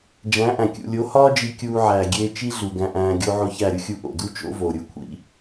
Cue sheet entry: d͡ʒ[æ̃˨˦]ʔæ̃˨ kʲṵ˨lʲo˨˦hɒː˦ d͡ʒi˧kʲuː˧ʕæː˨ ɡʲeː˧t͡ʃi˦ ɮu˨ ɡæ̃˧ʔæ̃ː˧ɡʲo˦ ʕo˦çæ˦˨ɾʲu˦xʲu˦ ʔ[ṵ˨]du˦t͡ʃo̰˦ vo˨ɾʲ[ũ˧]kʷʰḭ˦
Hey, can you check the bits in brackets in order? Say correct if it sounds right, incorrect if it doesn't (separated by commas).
correct, incorrect, incorrect